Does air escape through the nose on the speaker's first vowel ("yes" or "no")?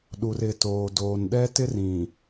no